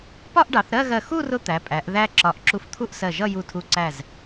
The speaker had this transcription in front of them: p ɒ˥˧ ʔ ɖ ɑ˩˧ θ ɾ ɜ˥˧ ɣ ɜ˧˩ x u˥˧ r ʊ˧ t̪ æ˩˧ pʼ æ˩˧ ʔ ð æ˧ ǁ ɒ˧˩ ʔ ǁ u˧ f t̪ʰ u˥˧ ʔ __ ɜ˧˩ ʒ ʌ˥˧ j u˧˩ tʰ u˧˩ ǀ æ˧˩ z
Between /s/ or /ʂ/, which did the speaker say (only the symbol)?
s